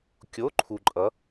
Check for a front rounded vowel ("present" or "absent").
absent